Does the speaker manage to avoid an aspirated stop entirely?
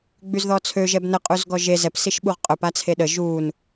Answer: no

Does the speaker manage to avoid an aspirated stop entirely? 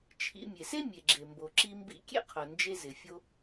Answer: no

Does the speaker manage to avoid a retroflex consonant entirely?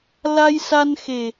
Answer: yes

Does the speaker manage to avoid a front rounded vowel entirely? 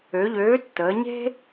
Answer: no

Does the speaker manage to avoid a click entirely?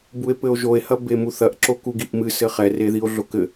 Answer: no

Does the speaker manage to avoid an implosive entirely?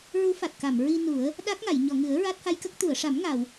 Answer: no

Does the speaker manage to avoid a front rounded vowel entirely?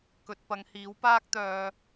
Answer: no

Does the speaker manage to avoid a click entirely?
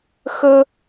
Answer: yes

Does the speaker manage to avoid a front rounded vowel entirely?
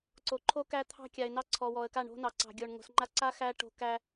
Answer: yes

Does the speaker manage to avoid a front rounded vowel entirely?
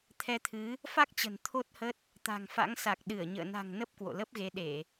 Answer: yes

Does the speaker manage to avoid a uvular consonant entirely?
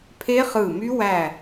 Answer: no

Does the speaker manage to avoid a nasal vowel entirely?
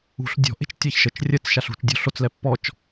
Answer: yes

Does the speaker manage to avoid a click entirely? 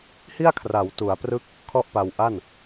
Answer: yes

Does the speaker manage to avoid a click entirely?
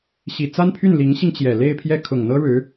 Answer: yes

